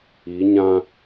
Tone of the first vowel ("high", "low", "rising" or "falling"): rising